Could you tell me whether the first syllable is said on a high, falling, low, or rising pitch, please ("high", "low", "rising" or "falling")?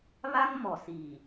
high